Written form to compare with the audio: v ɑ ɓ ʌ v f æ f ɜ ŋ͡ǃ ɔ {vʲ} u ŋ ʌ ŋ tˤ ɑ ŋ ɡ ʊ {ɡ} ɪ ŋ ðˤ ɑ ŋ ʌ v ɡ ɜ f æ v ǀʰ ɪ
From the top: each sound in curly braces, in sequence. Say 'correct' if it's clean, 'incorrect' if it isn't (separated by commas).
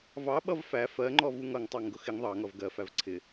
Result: incorrect, incorrect